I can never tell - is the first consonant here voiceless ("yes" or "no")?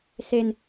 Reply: yes